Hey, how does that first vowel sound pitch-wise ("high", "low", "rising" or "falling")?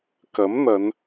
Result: rising